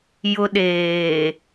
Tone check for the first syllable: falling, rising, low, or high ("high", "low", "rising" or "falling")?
high